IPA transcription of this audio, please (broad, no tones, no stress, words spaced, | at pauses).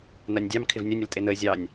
nanʲdʲɑm kʰɪvnʲœnʲ əltʼenəe̯ zʲɑnʲ